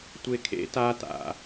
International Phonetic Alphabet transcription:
tʷ e kʰ ḛ t a t a̰

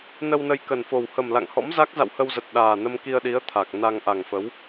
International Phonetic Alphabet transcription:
n ə˧ w n ə˧ j k ə˨˩ n f o˨˩ w h ə˨˩ m l a̰˧˨ ŋ h ɔ̰˧˥ m z a˦˥ k̚ z a̰˧˨ w h ə˧ w z ə˨˩ t̚ ɗ aː˨˩ n ə˧ m k i˧ ə̯ ɗ i˨˦ ə̯ t̪ʰ a˨˩ k̚ n a˧ ŋ ʔ a˨˩ ŋ f ə˨˦ w

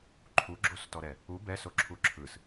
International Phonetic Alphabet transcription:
ǃʰ u ɡ͡ǁ o s t ɔ ɾ ɛ | u b ɛ s o ǁʰ u ǁʰ ɯ s

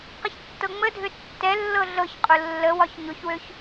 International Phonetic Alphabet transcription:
q ə ç tː ɤ ŋ͡m ə dʱ ø tː ɛ lː ɤ ɮ ɤ ç qʼ ʊ lː ə w ɒ ç ɲ ʊ ç w ø ç

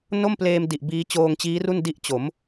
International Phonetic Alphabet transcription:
n o˥˩ m p l eː˧ m d i˨˩ ʔ b iː˦˥ t͡ɕ oː˧ ŋ t͡ɕ iː˦˥ r u˥˩ n d i˥˩ ʔ t͡ɕ o˩˦ m

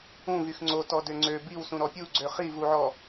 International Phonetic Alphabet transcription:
ũ v y x ŋ͡ǀ o t ɔ d ø ŋ͡ǀ ø b i w s ũ ɾ ɔ pʲ u ɡ͡ǀ ø χ i v u ʕ ɔ

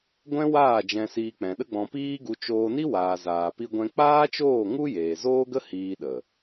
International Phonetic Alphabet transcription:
ɡʷ ɛ̃˦ w aː˦˨ d͡ʒ ɛ̃˧ s iː˧ k͡p ɛ̃˨ ɗ ə˦ ɡ͡b ɔ̃˧ p iː˦ ɡ u˧ t͡ʃ oː˧ n i˦ w aː˨ z aː˨ p i˧ ɡʷ ɛ̃˧ k͡p aː˦ t͡ʃ oː˦˨ ŋ u˦ j eː˨ z oː˦ ɡ ə˦ h iː˧ ɗ ə˨

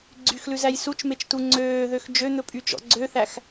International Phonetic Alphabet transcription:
ɡ͡ǀ y x l ʉ z æ j s u t͡ʃ m e t͡ʃ t u ŋ͡ǀ øː ð ø x d͡ʒ ø n̪ ɵ pʼ y t͡ʃ ɔ̰ ɡ͡ǀ ø θ æ x

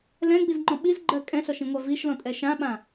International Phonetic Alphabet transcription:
l ɛ̃ ɡ͡b i z ŋ͡ǃ ɔ̃ ɓ i z ɡ͡ǃ ɜ kʼ ɛ̃ ɬ ɔ ʃ ĩ ŋʷ a v i ʃ l ɔ̃ tʼ ɛ ʃ ã ɓ ã

